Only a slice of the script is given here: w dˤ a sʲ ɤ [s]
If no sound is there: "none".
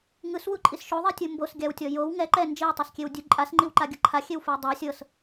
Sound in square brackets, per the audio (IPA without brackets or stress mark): s